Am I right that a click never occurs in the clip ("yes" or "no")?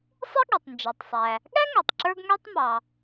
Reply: no